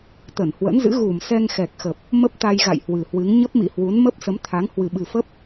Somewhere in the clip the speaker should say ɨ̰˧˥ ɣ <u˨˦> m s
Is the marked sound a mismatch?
yes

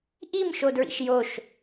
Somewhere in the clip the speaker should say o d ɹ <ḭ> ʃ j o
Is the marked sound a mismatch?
no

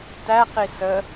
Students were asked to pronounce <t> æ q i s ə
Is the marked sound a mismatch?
no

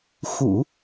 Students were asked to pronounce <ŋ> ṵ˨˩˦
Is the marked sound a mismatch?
yes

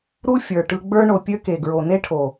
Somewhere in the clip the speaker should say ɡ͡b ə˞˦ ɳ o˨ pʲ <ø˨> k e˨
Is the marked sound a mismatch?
yes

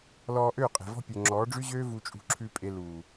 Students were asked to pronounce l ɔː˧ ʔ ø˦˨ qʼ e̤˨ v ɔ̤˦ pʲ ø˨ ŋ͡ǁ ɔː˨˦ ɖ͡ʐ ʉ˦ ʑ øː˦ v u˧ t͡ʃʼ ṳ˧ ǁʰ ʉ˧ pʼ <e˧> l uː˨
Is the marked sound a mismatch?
no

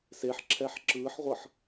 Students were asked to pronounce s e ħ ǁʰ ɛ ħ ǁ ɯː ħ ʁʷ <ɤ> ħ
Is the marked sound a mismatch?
no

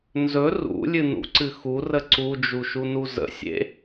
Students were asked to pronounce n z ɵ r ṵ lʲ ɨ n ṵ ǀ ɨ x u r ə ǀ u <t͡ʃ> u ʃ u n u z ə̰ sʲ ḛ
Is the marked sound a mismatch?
yes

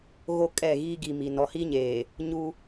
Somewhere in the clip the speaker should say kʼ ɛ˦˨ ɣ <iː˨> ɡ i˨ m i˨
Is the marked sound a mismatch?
yes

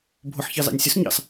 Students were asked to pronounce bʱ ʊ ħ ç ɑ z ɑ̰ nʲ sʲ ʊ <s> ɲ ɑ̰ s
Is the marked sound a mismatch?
no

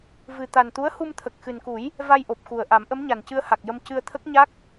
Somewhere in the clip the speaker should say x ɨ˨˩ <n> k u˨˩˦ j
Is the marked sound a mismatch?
no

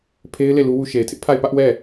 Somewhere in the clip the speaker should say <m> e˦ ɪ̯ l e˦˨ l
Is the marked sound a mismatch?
yes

